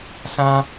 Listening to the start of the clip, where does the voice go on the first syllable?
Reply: high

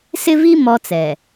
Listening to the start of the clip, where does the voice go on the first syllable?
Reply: high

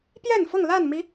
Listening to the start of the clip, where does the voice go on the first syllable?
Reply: falling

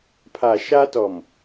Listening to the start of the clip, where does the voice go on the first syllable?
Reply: low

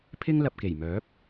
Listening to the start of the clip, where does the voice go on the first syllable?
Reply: high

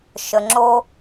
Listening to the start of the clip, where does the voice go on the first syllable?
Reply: low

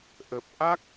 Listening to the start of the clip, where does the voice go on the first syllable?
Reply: low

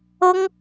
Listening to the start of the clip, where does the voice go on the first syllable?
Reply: high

